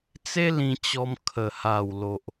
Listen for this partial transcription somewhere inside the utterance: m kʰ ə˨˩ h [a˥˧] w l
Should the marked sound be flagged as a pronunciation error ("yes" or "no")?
yes